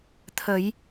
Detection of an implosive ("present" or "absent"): absent